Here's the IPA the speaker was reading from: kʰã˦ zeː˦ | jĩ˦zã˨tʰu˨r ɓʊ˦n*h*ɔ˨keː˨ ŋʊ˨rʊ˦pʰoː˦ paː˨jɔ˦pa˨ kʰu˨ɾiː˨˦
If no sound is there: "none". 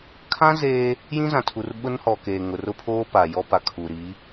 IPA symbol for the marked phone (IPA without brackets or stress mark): h